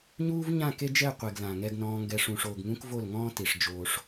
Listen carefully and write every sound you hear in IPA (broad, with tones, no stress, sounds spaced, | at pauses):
ɲ uː˦ v ɲ ã˦˨ k e˦ d͡ʒ ɛ˦˨ qʷ e˨ ɡ l ã˨ ŋ ɛ˧ ɡ n ɔ̃ː˧ ŋ ɡ ɛ˧ ʂ ũ˨ ʂ oː˨ ɡ ŋ ũ˧ k v o˦˨ l ŋ ɔ̃ː˦ t i˨ ʂ d͡ʒ oː˧ ʂ